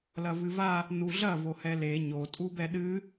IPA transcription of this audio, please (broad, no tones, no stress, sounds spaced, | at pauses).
l ɐ v ɨ v a | n u ɮ ɐ v o h ɛ l e ɲ o tʼ u b ɛ ɗ ɨ